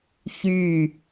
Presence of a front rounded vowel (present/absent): present